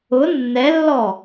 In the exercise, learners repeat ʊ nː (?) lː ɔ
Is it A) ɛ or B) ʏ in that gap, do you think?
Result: A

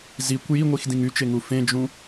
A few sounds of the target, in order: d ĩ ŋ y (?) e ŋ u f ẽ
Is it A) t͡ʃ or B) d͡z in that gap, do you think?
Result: A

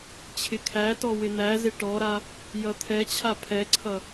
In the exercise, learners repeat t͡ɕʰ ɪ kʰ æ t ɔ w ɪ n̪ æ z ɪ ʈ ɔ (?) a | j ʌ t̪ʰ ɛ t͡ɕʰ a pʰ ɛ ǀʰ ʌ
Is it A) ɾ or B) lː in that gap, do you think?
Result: A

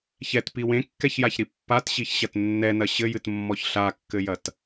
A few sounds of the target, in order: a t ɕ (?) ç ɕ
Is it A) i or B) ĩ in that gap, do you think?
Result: A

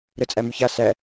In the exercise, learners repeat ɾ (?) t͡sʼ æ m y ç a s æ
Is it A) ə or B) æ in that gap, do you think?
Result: A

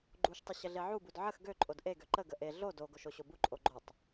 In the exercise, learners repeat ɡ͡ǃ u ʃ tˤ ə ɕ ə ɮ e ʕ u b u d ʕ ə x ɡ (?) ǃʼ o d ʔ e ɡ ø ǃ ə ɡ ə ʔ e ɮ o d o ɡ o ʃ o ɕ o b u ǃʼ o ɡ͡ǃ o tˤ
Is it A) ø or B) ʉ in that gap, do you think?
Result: A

